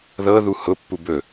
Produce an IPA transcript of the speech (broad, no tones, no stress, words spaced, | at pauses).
ðɤðu hʊpːu bɵ